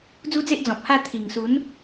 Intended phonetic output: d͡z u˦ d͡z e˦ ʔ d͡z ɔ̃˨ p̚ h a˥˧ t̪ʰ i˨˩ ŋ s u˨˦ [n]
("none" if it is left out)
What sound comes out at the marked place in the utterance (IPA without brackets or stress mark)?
n